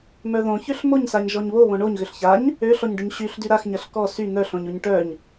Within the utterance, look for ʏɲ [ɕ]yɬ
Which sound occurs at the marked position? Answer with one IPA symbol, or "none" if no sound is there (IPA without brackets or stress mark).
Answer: ɕ